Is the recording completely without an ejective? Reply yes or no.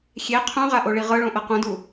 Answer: yes